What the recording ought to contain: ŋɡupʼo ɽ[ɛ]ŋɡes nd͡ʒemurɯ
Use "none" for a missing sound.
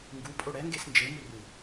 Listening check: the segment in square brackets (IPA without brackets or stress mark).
ɛ